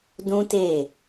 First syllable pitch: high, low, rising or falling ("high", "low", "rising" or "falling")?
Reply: high